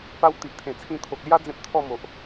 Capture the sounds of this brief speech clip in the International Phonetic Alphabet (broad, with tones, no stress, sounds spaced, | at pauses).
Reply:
p a˧ w t̪ i˨ ʔ t̪ʰ ẽ˨˩ t͡sʰ ĩ˧ t̪ʰ o˨ k̚ l j a˦ d͡z ẽ˦ p̚ t̪ʰ ɔ˥˧ m o˨ ʔ